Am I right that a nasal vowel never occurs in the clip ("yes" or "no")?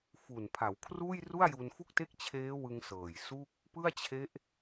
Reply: yes